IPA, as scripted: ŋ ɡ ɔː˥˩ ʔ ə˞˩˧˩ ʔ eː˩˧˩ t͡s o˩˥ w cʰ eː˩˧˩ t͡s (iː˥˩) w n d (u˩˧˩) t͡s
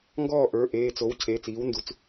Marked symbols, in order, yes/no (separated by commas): no, yes